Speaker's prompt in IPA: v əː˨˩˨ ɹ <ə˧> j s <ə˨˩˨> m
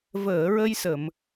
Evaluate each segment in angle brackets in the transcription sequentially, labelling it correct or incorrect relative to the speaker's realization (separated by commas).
correct, correct